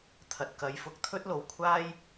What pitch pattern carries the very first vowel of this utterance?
low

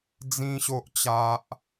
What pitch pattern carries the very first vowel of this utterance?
high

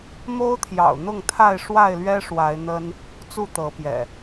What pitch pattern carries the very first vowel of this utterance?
high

